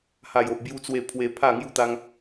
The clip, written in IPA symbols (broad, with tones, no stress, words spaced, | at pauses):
ha˨˩jo˨ʔbju˧t͡swe˧ pʰwe˧pʰa˥˧ŋju˥˧t̪a˦ŋ